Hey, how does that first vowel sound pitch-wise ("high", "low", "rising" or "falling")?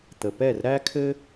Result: low